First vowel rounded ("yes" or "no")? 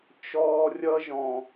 yes